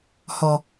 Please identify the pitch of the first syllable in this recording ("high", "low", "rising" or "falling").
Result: low